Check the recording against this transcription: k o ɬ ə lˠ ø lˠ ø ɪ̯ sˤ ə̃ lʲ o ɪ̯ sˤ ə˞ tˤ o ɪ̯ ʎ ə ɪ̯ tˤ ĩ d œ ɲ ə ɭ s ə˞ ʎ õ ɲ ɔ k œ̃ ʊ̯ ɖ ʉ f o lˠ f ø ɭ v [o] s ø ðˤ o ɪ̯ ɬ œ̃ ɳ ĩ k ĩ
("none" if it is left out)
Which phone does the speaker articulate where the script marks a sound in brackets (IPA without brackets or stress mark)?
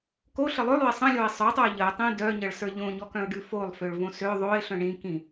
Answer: õ